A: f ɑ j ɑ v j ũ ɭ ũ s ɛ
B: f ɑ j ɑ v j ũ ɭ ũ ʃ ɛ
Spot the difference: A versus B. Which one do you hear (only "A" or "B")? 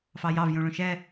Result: B